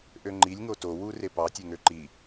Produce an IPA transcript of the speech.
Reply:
ʔ ø ŋ͡ǃ i lʲ ŋ o t o w u r e p ɑ tʲ e ŋ ø ǃ i

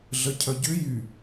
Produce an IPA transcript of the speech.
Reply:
ɮ ə cʰ œ ɟ ʏ j y

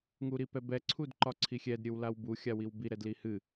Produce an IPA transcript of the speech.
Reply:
ŋ u ɾ i p ɛ b ɛ ǀʰ u d ǃ ɒ ǀʰ i xʲ ɛ d ɾʲ ɨ w l a w b u xʲ a w i w b i ɾ ɛ d l i h ɨ

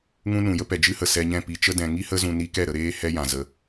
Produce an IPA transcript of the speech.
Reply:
ŋ ũ˦ n ũ˨ j ə˦ p ɛ˨ d͡ʒ ɨ˦ h ə˨ s ɛ˧ ɲ ɛ̃˦˨ p i˧ t͡ʃ ə˦ d ɛ̃˧ ŋ i˦ h ə˦ z ũ˧ n i˦ k ɛ˦˨ ɾ ə˧ ɾ eː˦ h ɛ˦ j ã˨ z ə˧

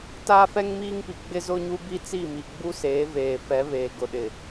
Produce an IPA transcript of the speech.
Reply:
t aː˦ f ɛ˦ ŋ m iː˦ ŋ p i˨ ɡ͡b ɪ˦ z ʊ˦ ɲ u˦ b i˦ t͡s i˦˨ m i˨ ɡ͡b u˦ s eː˨˦ v eː˨ f ɛ˨˦ β eː˨ ɡ ʊ˨ ɗ ɪ˨

